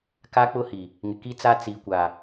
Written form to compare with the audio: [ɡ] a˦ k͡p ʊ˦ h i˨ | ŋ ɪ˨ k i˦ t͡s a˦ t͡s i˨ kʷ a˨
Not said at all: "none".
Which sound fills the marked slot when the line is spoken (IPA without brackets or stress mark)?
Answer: k